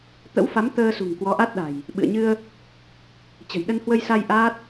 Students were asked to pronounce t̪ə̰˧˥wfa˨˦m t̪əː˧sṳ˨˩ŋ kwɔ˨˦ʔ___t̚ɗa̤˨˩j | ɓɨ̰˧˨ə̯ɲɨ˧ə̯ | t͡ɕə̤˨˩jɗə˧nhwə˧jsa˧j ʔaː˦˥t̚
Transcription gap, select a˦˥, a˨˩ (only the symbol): a˦˥